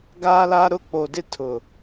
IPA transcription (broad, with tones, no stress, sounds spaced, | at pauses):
ɡ aː˦ l aː˦ ɾ ʊ˦˨ k͡p oː˨ d ɪ˦ tʰ ʊ˨